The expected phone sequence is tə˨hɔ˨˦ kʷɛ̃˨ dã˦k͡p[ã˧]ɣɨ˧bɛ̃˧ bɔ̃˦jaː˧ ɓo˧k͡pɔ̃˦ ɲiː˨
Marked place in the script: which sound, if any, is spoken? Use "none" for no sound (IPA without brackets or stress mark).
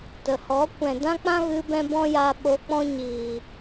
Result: ã˦